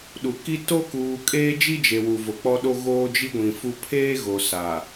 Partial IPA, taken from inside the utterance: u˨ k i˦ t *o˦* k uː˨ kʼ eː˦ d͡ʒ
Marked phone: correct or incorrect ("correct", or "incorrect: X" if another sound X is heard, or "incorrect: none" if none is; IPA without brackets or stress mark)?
correct